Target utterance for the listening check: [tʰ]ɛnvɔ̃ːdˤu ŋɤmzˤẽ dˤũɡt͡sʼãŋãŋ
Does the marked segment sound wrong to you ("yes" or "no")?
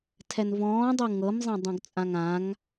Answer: no